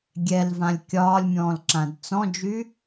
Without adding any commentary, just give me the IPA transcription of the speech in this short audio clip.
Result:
ɡʲ ɛ l v ã lʲ kʲ ɒː lʲ mʲ ɔ̃ː l ǁ ã d t͡s ɔ̃ d͡ʒ y

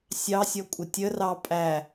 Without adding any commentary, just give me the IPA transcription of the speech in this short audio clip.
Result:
sʲ ɑ sʲ ɔ kʷʼ ə tʲ ə r ɑ pʼ æ

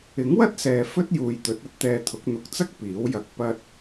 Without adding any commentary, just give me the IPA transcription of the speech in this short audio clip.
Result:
ɪ˨˥ ŋ w ɐ˥ t̚ s ɛː˨ f ɵ˥ t̚ j uː˨ j t̪ ɵ˨˥ t̚ ɐ˧ t̚ t̪ ɛː˧ t̪ʰ ʊ˨˥ k̚ n̪ ʊ˨˥ k̚ t͡s ɐ˥ k̚ p iː˨˥ w j ɐ˧ k̚ p ɐ˧ t̚

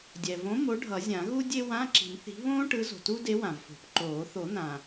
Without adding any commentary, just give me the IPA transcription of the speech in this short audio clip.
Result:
dʲ ɛ˩ v õ˨˥ m o˨˥ ɖʱ ʌ˨˩˦ zʲ ã˨˩˦ ɣ u˥ dʲ e˥ w ã˧˥˧ ǁ i̤˨˩˦ m θ i̤˨˥ β õː˥ ʈ ɯ˨˥ z o̤˩ t u˥ d e˨˥ w ã˩ v f o̤˨˩˦ p ǃ oː˨˩˦ θ o˨˩˦ n̪ ã˩

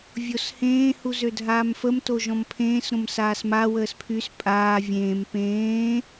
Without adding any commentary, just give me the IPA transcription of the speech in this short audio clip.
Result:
vʲ o s h ẽː h u z ø dʱ aː m f ə m t o ʒ ɔ̃ m pʰ ẽː s ɾ õ m s aː s m a w əː s pʰ y s pʼ aː vʲ ẽː m p ẽː

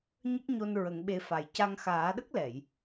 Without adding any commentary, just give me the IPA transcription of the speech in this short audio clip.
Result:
ɲ ə˦˥ k̚ ɲ o˧ n ɹ ə˨˩˦ ŋ ɓ e˧ f a˨˩ j c a˧ ŋ x aː˨˩˦ ɗ ə˦˥ k̚ l ɛ˨˩˨ j

